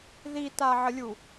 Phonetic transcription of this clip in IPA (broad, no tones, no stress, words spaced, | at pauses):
ðitaʕəlʲu